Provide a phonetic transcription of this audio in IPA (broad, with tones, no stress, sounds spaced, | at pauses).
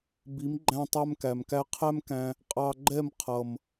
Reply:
b i˨˦ m ɡ͡ǃ æ̃˧ tˤ æ˧ m k æ˨ m k æ˧ qʰ æ˦ m k æ̃˧ | qʼ ɑ˧ ɡ͡ǃ ɛ˦˨ m qʰ ʌ˨ m